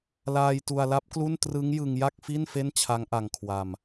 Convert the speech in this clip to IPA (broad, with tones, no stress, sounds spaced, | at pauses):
l aː˧ j t u˧ a̯ l a˦˥ p̚ k l u˥˩ n t r ɯ˦˥ ŋ j ɯ˧ ŋ j a˥˩ k̚ f i˥˩ n f e˥˩ n t͡ɕʰ a˦˥ ŋ ʔ a˧ ŋ kʰ w a˧ m